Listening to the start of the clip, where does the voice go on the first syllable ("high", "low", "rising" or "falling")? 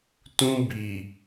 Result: high